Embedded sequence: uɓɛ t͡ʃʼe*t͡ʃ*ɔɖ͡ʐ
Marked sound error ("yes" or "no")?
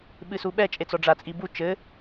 yes